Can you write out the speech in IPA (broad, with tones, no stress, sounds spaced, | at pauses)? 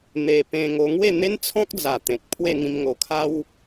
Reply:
n̪ e˧ p ẽ˧ ŋ o˧ ŋ w e˥˧ n̪ e˦ n t͡sʰ ɔ̃˦ k̚ d͡z a˨˩ t̪ ẽ˨ k̚ pʰ w e˥˧ ŋ ĩ˧ m ŋ o˨˩ kʰ a˦ w